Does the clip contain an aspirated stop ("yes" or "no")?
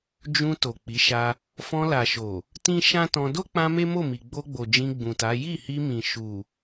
no